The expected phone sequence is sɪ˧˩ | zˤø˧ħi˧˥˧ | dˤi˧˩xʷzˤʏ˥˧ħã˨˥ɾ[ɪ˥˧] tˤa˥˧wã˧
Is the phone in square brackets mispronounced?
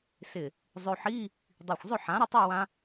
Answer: no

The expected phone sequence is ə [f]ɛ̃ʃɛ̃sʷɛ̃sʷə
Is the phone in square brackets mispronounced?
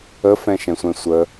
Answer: no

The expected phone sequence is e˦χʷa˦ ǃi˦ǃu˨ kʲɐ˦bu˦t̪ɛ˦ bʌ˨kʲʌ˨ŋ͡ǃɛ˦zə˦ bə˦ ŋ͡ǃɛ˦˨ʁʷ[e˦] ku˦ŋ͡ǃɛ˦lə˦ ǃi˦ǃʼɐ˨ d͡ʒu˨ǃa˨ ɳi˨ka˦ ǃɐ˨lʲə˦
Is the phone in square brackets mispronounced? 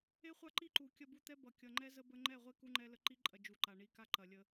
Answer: no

